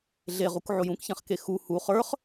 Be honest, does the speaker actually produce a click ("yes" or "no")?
no